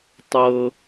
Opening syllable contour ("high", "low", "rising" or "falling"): low